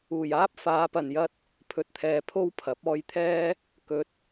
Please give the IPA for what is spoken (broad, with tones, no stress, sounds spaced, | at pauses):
uː˨˩ j aː˥ p̚ f aː˨˧ p ɐ˨ n j ɐ˧ t̚ | pʰ ɵ˨ t̚ t̪ʰ ɛː˨ pʰ o˥ w pʰ ɐ˨˥ p̚ ɔː˧ j t̪ʰ ɛː˥ | k ɵ˨˥ t̚